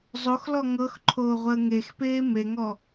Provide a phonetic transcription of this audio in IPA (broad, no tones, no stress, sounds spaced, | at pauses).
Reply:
zˤ o x l ɔ ŋ ɤ x ǃʰ oː ʁʷ əː ŋ e x p eː m e ŋ ɔ